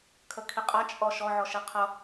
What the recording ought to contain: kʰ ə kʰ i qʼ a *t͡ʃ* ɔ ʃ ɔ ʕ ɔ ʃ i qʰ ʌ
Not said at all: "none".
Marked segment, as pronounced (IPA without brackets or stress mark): t͡ʃʼ